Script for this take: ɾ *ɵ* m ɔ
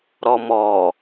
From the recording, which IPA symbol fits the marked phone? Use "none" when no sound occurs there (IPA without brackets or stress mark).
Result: ɔ